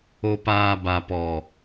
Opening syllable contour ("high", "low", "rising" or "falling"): low